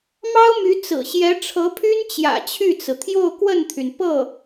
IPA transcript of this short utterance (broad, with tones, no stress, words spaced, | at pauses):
mɑ˥ʊ̯my˧˥ t͡sɹ̩˨˩ɕjɛ˧˥ʈ͡ʂʰɤ˧˥pʰy˥n t͡ɕjä̰˨˩t͡ɕʰy˥˩t͡sɹ̩˩ t̪ʰjo˥˧ʊ̯kwə˥˩nt̪ʰy˩n pɤ˥˩